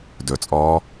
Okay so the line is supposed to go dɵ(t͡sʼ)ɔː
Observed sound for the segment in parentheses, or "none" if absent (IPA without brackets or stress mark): t͡sʼ